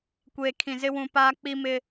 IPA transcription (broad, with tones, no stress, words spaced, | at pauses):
kʷeː˨kʰĩ˨ zɪ˦wũ˨paː˦ k͡pi˦mɪ˦